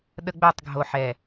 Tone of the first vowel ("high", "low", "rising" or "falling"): high